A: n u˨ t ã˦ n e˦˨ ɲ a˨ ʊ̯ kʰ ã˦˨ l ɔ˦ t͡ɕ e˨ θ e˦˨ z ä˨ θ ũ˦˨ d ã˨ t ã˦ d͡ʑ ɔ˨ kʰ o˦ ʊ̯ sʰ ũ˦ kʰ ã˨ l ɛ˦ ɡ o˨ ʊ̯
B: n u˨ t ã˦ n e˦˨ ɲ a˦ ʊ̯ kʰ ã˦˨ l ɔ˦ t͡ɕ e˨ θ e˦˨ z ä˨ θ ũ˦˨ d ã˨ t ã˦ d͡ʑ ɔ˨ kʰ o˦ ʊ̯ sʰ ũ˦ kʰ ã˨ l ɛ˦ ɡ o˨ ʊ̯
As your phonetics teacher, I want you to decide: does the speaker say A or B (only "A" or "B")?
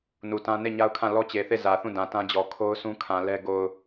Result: B